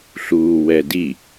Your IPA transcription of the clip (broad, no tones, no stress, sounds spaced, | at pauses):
ɬ uː w ɛ d i